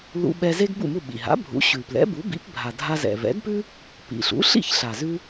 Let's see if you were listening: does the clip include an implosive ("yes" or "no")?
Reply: yes